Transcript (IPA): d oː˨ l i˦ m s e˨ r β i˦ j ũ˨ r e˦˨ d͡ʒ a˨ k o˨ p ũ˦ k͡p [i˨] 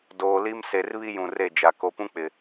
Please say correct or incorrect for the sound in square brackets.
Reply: incorrect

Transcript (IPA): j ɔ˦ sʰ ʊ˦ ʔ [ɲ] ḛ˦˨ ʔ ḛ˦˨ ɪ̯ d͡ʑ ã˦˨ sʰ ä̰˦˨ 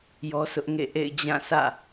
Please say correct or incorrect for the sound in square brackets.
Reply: incorrect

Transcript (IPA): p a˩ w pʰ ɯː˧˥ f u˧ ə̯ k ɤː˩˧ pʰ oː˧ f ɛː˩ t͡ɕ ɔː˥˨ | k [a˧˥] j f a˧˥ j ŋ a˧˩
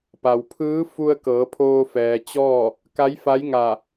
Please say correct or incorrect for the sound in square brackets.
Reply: correct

